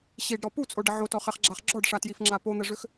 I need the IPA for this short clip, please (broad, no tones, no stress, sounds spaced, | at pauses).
ɕ i ɖ ɾ ɔ p u t͡sʼ o ɖ ə ʕ o t ɔ χ ɛ χ ɡ͡ǁ a χ ɡ͡ǁ ɔ ɖ ʂ a t j i f ŋ͡ǁ a p o n̪ ɛ ʐ ø x